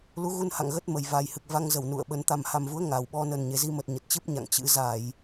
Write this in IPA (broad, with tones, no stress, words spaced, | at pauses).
lu˨˦ɣu˧nha̰˧˨ŋ ɣə˦˥t̚ mə˨˩jva˨˩jhɨ˨˩k̚ va˧ŋzə˧˩w nṵ˧˨ə̯ɓə˨˦n t̪a˨˩mha˨˩mvu˨˦ə̯ ŋa˨˩wɓɔ˧ nə˨˩nɲe˨˩zi˧mə˨˩t̚ ɲə˨˩t̚t͡ɕɨ˦˥p̚ɲa̰˧˨ŋ t͡ɕɨ̰˧˥ za˧˩˨j